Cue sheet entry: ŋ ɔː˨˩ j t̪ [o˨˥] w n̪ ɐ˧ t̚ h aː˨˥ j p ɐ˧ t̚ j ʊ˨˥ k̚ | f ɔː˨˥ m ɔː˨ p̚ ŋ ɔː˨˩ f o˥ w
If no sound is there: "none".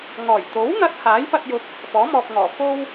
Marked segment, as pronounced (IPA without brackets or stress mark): o˨˥